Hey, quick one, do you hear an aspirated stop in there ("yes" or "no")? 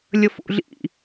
no